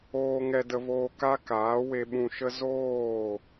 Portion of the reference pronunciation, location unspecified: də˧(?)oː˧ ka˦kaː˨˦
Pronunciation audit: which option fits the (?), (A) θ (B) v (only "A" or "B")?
B